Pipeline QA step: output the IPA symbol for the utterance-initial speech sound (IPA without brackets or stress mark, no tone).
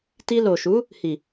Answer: t